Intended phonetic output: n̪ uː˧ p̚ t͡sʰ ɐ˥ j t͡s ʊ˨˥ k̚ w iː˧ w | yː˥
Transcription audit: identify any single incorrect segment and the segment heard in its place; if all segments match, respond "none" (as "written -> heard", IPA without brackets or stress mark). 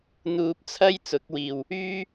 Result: iː˧ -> iː˨